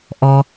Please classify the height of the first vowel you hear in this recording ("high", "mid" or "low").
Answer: mid